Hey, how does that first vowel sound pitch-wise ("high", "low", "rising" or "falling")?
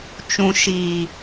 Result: low